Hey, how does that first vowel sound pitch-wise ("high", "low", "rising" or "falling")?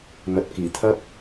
low